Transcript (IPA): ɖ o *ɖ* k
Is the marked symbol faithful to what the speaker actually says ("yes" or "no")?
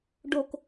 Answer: no